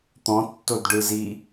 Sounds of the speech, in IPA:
t̪ɔ̃tːodɖɯzi

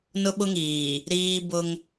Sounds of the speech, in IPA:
nʊ˦ɓʊ˦ŋiː˨ | ɾiː˦bʊ˦ŋ

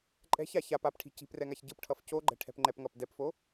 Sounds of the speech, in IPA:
ǃʼɛ̤ç aç ap apʈʰi̤ ci̤p rɛŋaçɟɯpʈʰʌf coɡ͡ǃɛ̤ ʈʰɛ̤pŋ͡ǃɛpŋʌp dɛpfo

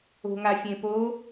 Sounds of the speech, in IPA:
o̤ŋafʲẽpo

